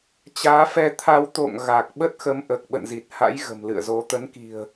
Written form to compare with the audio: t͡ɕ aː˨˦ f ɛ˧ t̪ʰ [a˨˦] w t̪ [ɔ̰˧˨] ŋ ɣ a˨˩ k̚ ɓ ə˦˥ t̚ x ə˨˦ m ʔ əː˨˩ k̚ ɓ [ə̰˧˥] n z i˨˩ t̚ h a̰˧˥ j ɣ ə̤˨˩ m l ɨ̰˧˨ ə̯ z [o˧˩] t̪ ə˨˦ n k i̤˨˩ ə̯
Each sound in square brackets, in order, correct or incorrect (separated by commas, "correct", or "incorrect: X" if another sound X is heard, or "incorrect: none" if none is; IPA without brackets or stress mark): incorrect: a˧, incorrect: o̰˧˨, incorrect: ə̰˧˨, incorrect: o˨˦